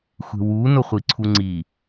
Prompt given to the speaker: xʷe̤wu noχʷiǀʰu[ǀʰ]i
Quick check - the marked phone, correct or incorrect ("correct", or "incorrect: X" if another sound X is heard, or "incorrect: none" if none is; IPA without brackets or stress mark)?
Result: incorrect: ŋ͡ǀ